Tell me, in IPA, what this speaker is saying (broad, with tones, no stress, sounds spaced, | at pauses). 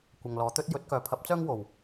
kʷ ɐ˨ ŋ l ɔː˨ t̪ ɵ˥ t̚ j ɵ˨˥ t̚ k œː˨ pʰ ɐ˨˥ p̚ t͡s œː˥ ŋ w o˨˩ w